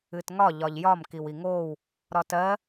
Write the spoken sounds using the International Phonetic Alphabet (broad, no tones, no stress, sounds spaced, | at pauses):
ɨ t ŋ ɒ ʎ ɒ ʎ j ɒ m k i w i ŋ oː w | ɾ ɒ t ɜ